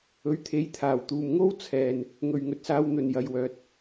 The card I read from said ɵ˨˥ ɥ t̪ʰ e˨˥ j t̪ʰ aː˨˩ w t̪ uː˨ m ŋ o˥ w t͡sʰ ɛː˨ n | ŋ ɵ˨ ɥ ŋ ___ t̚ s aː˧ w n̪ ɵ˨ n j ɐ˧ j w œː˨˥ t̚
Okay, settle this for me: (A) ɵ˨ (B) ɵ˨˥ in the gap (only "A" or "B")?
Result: A